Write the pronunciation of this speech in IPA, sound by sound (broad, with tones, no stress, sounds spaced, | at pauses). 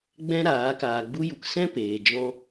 ɡ͡b ɛ̃˦ ɾ aː˨˦ k aː˧ ɡ͡b u˦ j u˧ k s ɛ̃˦ p eː˨ d͡ʒ ɔ̃˧